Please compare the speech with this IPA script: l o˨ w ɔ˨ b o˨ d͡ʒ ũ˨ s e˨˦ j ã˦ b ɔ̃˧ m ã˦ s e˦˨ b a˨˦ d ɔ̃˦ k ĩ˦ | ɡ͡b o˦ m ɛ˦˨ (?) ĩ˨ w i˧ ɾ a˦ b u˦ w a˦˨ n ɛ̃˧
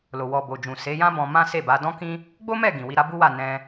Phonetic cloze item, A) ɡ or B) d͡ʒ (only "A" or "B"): A